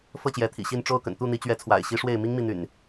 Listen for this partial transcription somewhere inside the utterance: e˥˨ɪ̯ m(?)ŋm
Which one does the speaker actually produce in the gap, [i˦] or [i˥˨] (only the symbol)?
i˦